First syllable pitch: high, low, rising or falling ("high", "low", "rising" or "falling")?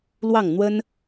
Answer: falling